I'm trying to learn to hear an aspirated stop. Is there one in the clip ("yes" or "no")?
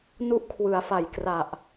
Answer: yes